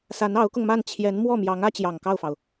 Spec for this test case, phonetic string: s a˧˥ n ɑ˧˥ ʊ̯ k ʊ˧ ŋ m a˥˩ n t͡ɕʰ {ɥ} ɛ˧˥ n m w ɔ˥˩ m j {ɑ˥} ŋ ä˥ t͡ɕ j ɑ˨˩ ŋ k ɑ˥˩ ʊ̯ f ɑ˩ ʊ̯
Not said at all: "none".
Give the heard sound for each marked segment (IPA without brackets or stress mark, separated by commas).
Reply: j, ɑ˧˥